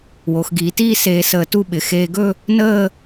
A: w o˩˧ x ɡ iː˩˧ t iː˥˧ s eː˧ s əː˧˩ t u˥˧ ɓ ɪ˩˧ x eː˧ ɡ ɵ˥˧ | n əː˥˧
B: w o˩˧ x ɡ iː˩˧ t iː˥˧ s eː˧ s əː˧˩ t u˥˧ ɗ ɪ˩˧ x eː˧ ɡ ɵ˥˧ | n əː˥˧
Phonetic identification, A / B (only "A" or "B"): A